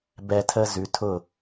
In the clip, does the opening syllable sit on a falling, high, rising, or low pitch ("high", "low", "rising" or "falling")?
high